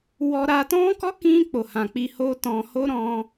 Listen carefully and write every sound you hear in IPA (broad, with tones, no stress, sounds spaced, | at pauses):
w ɔ˧ ɾ a˧ t ɔ̃˦ k ɔ˦ k ĩ˧ k͡p o˨ h ã˨ k͡p i˧ h o˦ t ɔ̃˧ h o˦ ɾ ɔ̃˧